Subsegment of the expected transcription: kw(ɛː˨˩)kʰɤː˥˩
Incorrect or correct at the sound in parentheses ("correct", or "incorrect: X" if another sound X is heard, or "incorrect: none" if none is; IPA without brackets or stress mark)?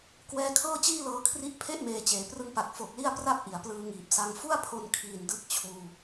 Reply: incorrect: ɛː˧